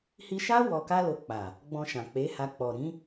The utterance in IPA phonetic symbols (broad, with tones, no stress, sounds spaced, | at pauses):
h i˧ ʃ a˦ w ɔ˧ k a˦ l o˧ k͡p a˨ | ɡ͡b ɔ̃˧ ʃ ã˨ k͡p e˨˦ h a˧ k͡p ɔ˨ ɾ ĩ˨˦